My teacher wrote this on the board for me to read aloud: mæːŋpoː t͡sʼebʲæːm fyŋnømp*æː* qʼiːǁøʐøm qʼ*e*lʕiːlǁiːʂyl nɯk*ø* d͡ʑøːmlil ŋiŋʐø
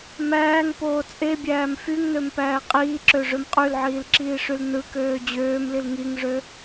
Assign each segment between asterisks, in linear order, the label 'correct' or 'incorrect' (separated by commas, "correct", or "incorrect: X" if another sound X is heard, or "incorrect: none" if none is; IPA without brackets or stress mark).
correct, incorrect: y, incorrect: øː